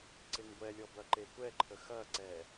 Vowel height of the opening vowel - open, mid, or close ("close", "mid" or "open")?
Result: close